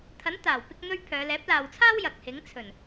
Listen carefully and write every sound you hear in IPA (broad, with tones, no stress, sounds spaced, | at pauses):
t̪ʰ ɐ˨˥ n t̪ aː˨˩ w p ɪ˧ k̚ n̪ ɵ˧ ɥ pʰ œː˨˧ l ɛː˨˥ p̚ l aː˨ w t͡sʰ aː˥ w j ɐ˨ k̚ h ɪ˨˥ ŋ t͡sʰ ɵ˨˩ n